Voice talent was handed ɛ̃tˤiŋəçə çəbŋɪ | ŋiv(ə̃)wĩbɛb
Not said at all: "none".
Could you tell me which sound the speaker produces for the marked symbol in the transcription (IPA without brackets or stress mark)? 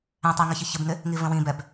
ə̃